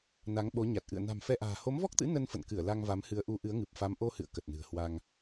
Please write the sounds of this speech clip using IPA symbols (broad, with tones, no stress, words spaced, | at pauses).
na˨˦ŋɓo˨˦ɲa˨˩t̚ ʔɨ̰˧˨ə̯ na̤˨˩mfɛ˧ʔa̤ː˨˩ ho˨˦mvɔ˦˥k̚t̪ɨ̰˧˥ nə˧nfə̰˧˨nkɨ˧˩ə̯ la˧ŋva˨˦mhɨ˨˦ə̯ ʔu˨˦ʔɨ˨˦ə̯ŋɨ˨˩p̚ fa˨˦mʔo˧hɨ̰˧˨ə̯ kə˨˩t̚nɨ̤˨˩ə̯ hwa˧ŋ